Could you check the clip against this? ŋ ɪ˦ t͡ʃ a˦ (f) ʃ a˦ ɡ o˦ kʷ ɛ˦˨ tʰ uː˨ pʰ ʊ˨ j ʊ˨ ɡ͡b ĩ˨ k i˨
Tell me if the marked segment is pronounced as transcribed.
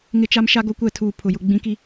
no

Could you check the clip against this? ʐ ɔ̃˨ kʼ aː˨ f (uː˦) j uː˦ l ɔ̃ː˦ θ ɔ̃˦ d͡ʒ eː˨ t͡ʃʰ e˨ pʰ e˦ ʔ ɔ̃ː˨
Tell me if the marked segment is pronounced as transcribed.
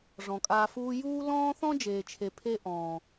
no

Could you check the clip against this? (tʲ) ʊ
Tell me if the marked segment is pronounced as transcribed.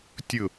yes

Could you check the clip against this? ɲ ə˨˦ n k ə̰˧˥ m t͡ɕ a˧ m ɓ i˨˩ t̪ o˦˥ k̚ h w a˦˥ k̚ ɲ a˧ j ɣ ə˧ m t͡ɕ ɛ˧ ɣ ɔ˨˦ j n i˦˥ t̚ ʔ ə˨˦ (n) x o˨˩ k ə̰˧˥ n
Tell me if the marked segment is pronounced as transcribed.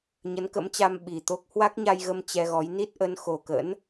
yes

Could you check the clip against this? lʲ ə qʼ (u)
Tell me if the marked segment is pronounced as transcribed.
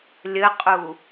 yes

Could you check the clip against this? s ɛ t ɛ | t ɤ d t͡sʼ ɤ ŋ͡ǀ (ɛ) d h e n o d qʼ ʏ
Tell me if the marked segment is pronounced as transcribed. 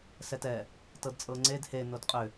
no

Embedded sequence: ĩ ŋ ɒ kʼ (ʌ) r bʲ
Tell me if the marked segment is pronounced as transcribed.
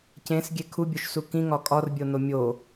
no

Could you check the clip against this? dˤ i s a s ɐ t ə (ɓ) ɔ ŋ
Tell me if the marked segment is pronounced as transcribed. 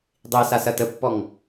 no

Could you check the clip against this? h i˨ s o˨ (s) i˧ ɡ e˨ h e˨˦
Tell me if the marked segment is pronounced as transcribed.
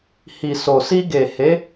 yes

